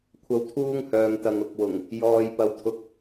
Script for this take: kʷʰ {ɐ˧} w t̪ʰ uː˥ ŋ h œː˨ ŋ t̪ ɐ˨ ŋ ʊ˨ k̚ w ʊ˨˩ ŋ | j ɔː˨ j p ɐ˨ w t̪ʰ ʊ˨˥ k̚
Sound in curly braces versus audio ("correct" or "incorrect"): correct